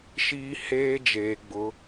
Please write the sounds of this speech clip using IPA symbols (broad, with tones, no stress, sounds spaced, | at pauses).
ʃ iː˦ h eː˦ d͡ʒ eː˨ ɡ͡b ʊ˨˦